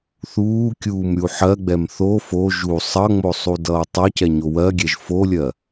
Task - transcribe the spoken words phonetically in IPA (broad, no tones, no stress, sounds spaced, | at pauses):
θ uː kʲ uː m ɾʲ u ħ ɜ ɡ͡b ɛ m θ o f o ʒ u sˤ ʌ ŋ͡m o sˤ u d ʌː tˤ ʌ c ɛ ɲ o w ɜ ɡʲ ɛ ʒ f o lʲ ɜ